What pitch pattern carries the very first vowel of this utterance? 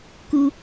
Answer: high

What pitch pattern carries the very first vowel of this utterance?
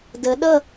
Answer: rising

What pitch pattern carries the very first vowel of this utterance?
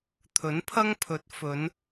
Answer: rising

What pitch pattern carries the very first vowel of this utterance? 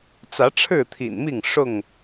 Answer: rising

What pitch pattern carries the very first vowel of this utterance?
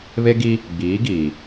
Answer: high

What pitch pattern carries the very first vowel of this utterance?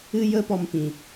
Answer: high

